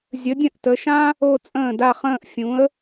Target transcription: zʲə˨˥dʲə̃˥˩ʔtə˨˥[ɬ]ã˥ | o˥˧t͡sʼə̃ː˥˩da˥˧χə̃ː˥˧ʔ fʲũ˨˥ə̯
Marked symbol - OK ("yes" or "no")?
no